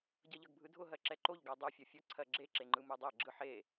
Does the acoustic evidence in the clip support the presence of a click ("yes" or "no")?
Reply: yes